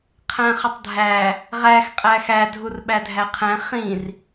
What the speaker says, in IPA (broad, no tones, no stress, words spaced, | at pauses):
qʰæ̃χətˤdʱæ | ʁæx qʼæxæ dʱurɓædʱæqʰɛ̃ χĩr